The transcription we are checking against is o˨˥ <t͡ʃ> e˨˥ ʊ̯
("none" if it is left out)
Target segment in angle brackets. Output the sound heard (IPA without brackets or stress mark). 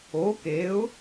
k